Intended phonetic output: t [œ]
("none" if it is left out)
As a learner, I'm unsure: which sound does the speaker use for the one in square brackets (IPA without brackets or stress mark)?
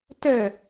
œ